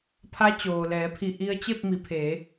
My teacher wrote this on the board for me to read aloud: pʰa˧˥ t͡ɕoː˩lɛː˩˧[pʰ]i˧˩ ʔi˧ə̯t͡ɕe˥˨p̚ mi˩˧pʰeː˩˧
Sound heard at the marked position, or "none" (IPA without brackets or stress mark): pʰ